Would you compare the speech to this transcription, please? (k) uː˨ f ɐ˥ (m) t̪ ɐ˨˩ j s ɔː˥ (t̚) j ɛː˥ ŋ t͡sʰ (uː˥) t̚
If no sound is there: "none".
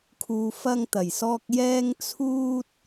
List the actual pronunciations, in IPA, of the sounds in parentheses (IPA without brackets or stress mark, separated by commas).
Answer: kʰ, ŋ, k̚, uː˥